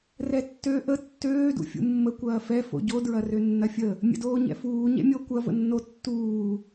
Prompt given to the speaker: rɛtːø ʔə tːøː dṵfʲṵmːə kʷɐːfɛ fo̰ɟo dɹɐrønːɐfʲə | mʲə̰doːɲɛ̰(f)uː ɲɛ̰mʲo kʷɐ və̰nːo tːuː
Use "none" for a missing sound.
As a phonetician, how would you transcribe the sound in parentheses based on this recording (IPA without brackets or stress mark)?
f